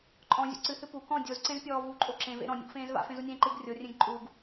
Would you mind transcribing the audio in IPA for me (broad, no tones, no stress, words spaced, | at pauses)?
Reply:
ǃʼɔ̃zʲṵ ǀɨhɨ pu kɔ̃ dʲozǀẽzpʲɔː vuǃʼo ǁẽvḛ ɾɔ̃nʲo̰ɡfẽːz va̰fẽzunʲẽː ǃɨɡ rʲorʲẽɡ ǃʼuɡ